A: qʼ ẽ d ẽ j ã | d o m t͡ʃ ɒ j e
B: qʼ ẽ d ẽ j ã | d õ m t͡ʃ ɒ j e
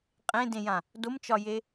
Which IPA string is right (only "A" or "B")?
A